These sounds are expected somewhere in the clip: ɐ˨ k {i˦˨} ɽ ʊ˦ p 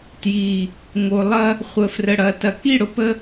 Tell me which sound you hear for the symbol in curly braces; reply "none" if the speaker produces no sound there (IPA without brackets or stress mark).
i˦˨